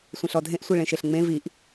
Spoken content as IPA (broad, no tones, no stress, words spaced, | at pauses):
sʷẽɬɔdʱẽʔ sʷiɭẽʃeɬŋ͡mẽ viʔ